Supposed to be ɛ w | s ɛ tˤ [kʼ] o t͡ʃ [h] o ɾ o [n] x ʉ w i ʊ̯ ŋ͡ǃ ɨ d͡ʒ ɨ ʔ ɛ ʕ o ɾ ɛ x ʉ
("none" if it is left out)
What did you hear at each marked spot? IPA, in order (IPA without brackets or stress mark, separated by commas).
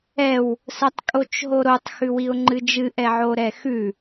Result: kʼ, ɦ, tˤ